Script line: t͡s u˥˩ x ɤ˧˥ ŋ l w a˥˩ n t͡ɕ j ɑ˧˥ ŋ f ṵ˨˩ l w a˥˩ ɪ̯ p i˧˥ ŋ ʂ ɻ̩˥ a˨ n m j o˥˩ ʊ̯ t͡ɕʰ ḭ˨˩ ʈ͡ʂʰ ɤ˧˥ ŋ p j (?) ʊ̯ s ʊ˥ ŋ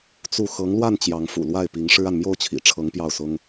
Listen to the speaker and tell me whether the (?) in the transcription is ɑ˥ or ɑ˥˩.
ɑ˥˩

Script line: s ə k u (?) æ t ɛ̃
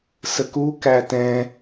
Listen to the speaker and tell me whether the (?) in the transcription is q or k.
k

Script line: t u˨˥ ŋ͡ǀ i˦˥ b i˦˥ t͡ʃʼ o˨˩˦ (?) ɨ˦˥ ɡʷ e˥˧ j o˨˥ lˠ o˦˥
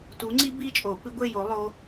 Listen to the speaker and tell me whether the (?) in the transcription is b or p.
p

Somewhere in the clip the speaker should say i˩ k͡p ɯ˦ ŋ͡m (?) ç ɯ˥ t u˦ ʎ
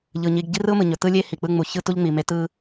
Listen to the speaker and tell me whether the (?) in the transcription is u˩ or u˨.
u˨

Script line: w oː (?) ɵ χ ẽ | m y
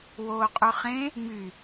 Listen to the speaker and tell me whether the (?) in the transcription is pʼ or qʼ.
qʼ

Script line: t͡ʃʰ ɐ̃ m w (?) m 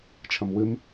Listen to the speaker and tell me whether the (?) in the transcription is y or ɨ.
ɨ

